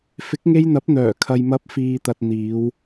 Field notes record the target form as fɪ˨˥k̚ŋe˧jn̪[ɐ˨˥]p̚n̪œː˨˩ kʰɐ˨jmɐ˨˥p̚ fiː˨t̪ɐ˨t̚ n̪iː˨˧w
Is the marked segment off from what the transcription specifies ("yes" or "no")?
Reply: no